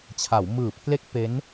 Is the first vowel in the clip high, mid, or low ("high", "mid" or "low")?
low